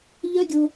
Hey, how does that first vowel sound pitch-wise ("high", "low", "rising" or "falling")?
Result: high